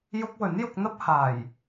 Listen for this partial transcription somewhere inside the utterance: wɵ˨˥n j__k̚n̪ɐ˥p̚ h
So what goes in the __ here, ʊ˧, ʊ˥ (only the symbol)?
ʊ˧